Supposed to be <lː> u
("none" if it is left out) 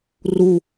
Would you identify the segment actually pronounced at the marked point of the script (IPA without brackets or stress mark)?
r